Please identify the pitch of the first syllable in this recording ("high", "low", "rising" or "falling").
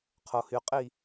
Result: low